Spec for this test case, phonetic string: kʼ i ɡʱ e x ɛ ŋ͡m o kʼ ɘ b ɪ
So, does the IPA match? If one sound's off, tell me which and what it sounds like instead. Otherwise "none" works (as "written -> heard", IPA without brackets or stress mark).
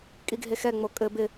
none